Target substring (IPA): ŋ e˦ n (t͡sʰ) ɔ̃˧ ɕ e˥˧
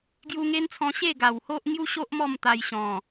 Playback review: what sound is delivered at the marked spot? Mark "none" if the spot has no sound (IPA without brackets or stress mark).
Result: t͡sʰ